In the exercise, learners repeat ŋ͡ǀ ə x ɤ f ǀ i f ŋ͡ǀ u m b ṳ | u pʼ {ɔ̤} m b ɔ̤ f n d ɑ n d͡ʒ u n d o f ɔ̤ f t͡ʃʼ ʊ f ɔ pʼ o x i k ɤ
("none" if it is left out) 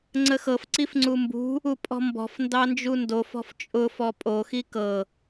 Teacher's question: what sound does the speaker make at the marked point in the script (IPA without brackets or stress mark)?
ɔ̤